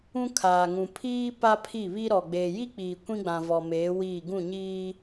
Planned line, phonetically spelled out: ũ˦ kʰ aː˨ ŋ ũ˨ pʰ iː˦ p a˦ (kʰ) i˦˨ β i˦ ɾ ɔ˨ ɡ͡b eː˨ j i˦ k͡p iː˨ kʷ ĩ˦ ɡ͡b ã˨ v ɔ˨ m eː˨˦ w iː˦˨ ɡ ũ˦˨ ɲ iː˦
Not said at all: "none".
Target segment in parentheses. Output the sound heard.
pʰ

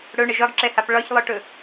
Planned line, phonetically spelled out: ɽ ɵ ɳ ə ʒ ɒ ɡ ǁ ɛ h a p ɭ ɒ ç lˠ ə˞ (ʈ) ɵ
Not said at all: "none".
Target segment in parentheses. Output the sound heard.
ʈ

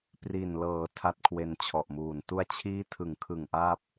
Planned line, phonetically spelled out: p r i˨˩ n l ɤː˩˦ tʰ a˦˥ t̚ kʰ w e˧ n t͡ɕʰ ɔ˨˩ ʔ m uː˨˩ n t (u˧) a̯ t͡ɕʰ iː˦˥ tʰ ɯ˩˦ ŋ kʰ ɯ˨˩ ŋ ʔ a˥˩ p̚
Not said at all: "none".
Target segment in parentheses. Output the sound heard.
u˧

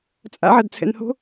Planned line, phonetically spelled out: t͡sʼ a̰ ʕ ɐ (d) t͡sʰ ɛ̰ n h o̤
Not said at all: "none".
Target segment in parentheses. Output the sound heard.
d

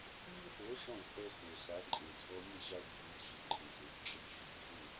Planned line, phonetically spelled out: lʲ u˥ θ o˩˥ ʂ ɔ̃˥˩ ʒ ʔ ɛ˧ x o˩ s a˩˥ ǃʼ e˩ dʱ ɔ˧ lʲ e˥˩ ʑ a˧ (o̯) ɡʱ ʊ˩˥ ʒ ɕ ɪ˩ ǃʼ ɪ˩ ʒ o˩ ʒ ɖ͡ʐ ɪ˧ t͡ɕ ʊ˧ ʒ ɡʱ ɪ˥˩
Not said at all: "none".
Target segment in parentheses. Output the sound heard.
o̯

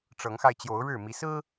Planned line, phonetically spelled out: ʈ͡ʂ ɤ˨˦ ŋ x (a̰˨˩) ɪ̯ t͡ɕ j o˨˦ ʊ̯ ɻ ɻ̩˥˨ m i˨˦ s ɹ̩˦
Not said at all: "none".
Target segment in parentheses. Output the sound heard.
a˧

